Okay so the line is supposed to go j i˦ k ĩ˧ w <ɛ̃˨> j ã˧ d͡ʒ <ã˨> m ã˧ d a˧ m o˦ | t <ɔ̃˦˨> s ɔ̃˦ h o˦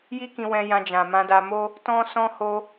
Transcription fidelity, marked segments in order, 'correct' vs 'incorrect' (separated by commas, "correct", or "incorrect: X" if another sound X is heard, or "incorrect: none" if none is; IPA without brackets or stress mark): incorrect: ɛ̃˧, correct, incorrect: ɔ̃˦